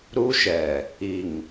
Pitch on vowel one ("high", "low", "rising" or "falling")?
high